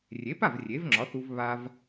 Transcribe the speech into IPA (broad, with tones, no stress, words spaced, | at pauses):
rʲe˩˥pa˥˩v rʲe˩˥vŋ͡ǁɒ˩˥θu˧v βa˧v